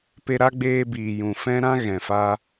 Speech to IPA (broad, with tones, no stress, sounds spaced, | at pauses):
p e˧ ɾ a˦ ɡ͡b eː˧ b iː˨ j ũ˨ f ɛ̃˦ ɾ ã˦ ɣ ɛ̃˨ f a˧